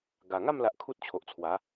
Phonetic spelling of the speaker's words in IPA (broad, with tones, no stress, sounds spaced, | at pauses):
ɡ a˨˩ ŋ a˥˧ m l a˨ ʔ kʰ u˦ t̚ t͡ɕʰ o˨ ʔ t͡sʰ w a˨˦